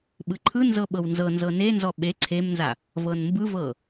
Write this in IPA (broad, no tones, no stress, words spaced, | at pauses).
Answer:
ɓɯǃʰɯnzɤ ɓɤwnzɤnzɤ nenzɔ ɓe ǀʰemnza | vɤnmbɯvɤ